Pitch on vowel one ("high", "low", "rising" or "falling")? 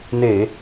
low